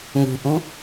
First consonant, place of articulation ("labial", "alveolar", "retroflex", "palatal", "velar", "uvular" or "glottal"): velar